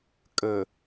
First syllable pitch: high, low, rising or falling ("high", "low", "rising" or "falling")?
low